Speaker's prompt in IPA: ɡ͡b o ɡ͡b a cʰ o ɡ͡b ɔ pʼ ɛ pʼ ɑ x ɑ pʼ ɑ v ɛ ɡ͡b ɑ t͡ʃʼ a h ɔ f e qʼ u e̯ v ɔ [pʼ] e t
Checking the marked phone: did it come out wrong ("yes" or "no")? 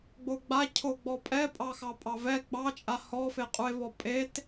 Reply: no